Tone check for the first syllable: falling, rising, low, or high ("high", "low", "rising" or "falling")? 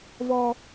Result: high